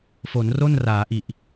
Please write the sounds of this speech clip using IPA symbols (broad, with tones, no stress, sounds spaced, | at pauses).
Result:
f o˩˦ n r o˥˩ n r aː˩˦ ʔ i˨˩ ʔ